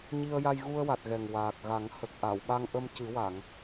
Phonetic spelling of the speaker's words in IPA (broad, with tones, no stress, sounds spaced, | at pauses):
ɲ i˧ ə̯ j a˧ j ɣ u˧ ə̯ w a˨˩ t̚ ɣ ɛ˨˩ ŋ w aː˨˩ k̚ ɣ a˨˩˦ ŋ h ə˨˩ k̚ ʔ a˨˩˨ w ɓ a˧ ŋ ʔ ə˧ m c ɨ˨˩˦ w a˨˩˨ ŋ